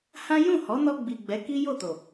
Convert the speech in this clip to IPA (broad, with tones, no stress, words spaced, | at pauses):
hã˦ jũ˦˨ hɔ˨˦nɔ˧ɡ͡bi˨ ɡ͡bɛ˨˦ki˦jo˦˨to˨